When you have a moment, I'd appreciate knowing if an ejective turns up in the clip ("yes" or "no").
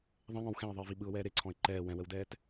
no